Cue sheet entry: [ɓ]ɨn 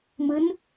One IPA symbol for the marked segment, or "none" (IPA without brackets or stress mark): m